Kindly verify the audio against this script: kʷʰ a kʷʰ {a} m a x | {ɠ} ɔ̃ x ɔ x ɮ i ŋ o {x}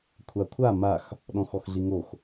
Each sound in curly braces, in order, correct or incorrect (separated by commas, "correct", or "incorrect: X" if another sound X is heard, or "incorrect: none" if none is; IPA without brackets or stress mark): correct, incorrect: ɗ, correct